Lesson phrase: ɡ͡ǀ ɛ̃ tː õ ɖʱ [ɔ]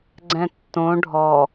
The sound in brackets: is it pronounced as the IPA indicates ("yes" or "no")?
yes